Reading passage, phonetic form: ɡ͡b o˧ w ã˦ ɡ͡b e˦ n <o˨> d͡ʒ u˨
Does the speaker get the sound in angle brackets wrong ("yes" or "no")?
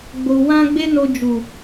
yes